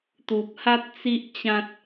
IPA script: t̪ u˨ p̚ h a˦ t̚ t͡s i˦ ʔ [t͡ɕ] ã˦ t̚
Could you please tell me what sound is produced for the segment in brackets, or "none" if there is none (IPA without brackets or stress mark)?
t͡ɕ